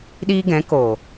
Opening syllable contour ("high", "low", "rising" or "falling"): high